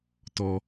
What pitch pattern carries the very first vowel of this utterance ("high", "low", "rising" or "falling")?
low